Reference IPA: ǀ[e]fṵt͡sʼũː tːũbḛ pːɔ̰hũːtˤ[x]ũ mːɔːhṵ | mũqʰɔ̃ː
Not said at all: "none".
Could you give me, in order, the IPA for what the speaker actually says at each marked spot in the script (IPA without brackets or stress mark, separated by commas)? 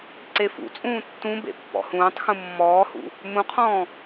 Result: e, x